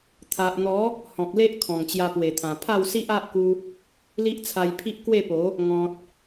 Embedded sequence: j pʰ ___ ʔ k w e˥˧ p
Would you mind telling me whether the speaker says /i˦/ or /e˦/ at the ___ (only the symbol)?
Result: i˦